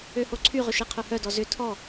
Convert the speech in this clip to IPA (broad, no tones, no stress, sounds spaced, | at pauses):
ø h o ǀʰ y ʁ ʏ ʃ e qʰ œ h œ d ɔ z ʏ tʰ ɔ